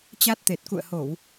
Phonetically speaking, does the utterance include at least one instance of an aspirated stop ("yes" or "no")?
no